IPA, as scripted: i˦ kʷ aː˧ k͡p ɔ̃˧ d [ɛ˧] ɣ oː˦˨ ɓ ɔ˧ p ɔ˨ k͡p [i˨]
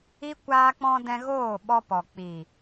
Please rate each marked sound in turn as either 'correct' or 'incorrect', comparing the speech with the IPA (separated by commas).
incorrect, correct